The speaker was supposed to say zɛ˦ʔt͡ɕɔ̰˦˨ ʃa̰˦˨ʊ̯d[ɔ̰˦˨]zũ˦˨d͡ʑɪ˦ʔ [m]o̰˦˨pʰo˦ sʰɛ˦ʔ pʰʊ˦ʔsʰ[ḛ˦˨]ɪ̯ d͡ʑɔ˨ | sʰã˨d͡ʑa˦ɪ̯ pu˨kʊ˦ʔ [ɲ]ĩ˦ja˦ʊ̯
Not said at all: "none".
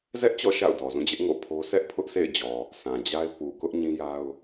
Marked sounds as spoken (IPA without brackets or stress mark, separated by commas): ɔ˨, ŋ, ḛ˦˨, ɲ